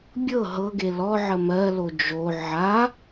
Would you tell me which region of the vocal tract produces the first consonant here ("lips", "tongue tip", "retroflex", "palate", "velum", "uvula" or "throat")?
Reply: lips